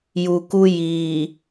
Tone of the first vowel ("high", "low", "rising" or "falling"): low